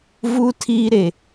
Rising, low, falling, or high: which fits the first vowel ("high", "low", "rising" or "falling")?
high